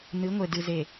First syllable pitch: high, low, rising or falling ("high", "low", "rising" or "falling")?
rising